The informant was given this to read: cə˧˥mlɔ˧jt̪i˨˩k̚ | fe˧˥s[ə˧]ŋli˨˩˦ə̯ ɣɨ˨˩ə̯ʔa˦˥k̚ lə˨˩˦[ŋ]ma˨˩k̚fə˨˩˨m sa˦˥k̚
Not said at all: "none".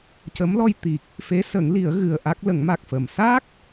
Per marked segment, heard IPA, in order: ə˨˩˦, ŋ

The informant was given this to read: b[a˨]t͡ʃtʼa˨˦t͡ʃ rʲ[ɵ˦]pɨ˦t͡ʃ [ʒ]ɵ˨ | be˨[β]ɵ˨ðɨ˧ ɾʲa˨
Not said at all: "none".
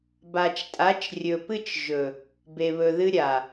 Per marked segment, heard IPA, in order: a˨, ɵ˨, ʒ, β

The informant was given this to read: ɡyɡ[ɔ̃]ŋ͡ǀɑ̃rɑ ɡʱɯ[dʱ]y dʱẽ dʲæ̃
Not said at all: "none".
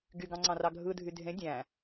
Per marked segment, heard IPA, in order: ɑ̃, dʱ

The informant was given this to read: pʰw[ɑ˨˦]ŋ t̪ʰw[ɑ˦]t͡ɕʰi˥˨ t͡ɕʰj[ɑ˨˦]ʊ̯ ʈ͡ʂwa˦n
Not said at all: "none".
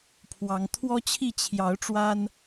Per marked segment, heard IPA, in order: ɑ˨˦, ɔ˦, ɑ˨˦

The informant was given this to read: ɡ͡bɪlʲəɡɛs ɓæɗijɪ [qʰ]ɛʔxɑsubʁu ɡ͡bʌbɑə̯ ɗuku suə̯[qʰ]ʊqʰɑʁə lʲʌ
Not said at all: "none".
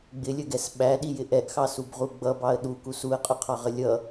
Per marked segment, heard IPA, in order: ʔ, qʼ

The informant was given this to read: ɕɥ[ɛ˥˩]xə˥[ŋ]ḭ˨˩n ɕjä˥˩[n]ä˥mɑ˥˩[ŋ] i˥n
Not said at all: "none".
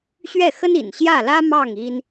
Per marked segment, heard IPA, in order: ɛ˥˩, n, l, ŋ

